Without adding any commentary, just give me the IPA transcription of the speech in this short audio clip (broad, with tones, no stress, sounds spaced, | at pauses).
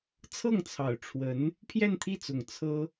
t͡sʰ ɤ˥˩ ŋ t͡sʰ ɑ˨˩ ʊ̯ ʈ͡ʂʰ w ə˧˥ n | pʰ j ɛ˥˧ n t̪ʰ i˥˩ t͡s ʊ˨˩ ŋ t͡sʰ ɤ˥